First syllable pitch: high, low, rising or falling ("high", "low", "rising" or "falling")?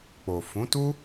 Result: low